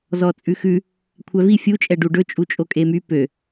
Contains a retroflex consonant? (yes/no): yes